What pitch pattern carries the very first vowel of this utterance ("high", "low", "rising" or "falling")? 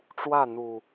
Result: falling